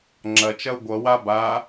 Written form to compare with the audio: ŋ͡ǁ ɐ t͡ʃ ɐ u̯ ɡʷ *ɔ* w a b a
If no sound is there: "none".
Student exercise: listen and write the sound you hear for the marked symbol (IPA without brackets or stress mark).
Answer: ʌ